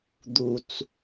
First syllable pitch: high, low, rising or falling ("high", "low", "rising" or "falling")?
low